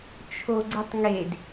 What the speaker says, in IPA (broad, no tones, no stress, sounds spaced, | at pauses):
t͡ʃʰ o ɡ͡ǀ ə tˤ ŋ e d